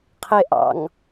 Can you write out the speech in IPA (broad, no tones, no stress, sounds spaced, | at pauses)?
qʰ e ʔ ɑ̰ ŋ